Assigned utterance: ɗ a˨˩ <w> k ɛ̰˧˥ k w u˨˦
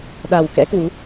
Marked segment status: correct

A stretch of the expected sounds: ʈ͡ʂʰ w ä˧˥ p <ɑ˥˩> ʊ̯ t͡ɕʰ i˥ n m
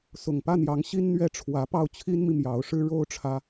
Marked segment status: correct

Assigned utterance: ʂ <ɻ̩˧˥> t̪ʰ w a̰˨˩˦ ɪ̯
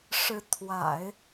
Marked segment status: correct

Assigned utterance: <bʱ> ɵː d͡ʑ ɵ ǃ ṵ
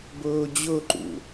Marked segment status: incorrect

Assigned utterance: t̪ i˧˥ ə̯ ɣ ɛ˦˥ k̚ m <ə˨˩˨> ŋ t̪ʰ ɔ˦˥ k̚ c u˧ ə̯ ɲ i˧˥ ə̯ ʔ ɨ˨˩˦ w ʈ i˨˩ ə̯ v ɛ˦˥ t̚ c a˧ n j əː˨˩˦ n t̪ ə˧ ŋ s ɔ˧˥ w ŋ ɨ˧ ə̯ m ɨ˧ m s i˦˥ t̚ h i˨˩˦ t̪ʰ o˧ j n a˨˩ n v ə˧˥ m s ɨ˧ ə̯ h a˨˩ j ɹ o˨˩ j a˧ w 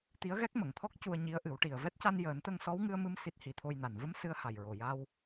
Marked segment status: correct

